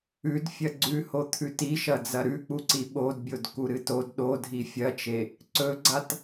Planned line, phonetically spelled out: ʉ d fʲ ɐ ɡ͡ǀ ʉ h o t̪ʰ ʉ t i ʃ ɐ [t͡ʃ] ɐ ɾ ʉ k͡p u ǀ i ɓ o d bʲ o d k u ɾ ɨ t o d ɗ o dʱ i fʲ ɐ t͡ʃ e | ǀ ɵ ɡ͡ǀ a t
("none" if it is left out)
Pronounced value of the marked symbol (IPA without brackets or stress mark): d͡z